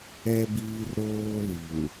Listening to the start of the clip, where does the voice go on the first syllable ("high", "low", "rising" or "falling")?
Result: high